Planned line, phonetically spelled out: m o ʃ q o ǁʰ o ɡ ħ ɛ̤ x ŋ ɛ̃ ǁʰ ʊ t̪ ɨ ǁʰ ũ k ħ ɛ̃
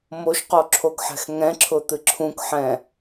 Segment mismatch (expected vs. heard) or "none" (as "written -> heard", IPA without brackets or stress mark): none